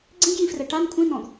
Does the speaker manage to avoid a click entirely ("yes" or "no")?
no